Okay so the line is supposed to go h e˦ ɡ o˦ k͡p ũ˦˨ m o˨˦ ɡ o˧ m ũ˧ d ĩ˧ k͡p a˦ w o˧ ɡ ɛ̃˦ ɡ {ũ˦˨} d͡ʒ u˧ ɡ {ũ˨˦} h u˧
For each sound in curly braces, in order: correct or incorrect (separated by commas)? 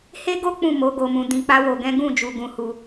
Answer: correct, incorrect